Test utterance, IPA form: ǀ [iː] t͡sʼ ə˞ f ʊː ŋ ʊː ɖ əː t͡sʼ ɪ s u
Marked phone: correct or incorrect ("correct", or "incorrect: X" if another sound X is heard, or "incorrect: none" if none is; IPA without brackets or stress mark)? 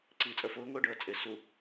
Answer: correct